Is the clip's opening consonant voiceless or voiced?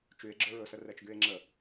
voiceless